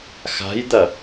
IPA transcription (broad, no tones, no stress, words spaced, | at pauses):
xa̤jd̪ɐ